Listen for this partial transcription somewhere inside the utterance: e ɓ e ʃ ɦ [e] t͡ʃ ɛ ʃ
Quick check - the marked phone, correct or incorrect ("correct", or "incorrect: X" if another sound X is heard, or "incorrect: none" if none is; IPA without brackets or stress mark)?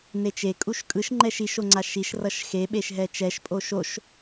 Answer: incorrect: ɛ